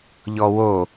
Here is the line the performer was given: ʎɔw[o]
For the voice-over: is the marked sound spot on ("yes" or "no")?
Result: yes